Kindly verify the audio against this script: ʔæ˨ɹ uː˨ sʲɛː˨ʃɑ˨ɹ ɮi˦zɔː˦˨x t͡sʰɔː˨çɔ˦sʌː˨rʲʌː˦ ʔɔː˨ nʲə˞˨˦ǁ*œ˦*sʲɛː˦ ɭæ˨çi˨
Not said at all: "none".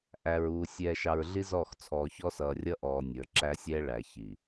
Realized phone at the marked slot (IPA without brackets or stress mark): æ˦